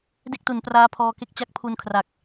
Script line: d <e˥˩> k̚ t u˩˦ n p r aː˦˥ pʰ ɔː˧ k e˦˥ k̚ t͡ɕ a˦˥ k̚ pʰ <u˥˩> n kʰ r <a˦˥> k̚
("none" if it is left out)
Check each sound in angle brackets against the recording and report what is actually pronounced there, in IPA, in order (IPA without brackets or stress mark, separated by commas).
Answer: e˥˩, u˧, a˨˩